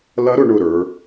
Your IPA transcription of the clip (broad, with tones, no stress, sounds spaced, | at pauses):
l ɐ˦˥ ɾ ʊ˩˧ ɳ ʊ˧˩ ɾ ə˞˩˧